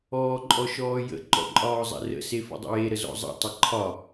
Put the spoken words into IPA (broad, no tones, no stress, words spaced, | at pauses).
ɔːǃʼɔʃɔːjə̰ ǃɔ̰ǃʼɒːzˤɛ̰rə̰ sefə̰dˤə̰je ɾəzɔ̰zˤɛ̰ tˤəǃʰɒ